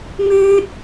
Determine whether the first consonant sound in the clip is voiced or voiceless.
voiced